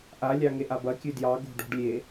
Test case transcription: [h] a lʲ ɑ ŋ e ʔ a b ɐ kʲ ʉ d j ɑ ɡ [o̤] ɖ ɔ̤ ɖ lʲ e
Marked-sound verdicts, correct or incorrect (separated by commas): incorrect, correct